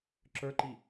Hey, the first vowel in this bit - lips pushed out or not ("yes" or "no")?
no